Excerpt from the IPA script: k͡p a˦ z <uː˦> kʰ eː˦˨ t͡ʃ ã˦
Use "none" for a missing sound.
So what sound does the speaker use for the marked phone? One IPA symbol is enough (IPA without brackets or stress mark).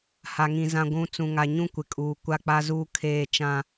uː˦